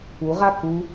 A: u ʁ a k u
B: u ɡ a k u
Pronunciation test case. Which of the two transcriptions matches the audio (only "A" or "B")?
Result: A